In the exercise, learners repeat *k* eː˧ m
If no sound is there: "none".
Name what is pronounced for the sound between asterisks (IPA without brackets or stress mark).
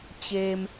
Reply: t͡ɕ